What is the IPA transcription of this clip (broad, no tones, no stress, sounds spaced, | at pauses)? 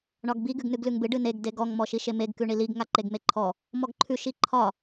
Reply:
ɳ ɒ ɡ b i ɡ ʉ ɡ n ʉ ɡ l ʉ ŋ b ɨ ɖ ɨ n e ɡ d e ɡ ɔ ŋ m ɔ ʃ i ʃ e m e ɡ k ʉ ɳ i l i ɡ ŋ a ǃ e ɡ m e ǃʰ ɔ | m ɔ ɡ ǃʰ ʉ ʃ i ǃʰ ɒ